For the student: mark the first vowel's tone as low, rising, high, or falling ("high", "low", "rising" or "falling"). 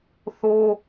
high